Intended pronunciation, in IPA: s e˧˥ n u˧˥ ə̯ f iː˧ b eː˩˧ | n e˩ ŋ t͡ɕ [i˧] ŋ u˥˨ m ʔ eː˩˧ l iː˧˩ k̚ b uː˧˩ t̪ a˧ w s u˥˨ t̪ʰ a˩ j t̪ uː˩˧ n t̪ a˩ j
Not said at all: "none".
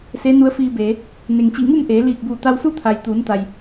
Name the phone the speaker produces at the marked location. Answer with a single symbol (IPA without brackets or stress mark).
i˧˩